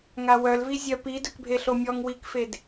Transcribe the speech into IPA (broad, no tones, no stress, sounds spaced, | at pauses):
ŋ a w œ l v i zʲ œ p i d œ k bʱ e ɬ o mʲ ɔ ŋ w i k f e d